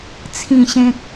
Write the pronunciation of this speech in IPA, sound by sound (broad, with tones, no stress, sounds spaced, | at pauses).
t͡sʰ ĩ˥˧ ɕ ẽ˦ k̚